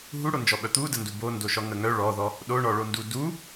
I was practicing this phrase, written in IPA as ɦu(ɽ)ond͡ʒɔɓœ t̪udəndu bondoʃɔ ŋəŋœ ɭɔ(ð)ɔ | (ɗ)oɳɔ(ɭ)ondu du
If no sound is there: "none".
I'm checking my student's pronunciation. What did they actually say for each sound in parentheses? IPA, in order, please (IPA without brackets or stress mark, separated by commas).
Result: ɽ, ð, ɗ, ɭ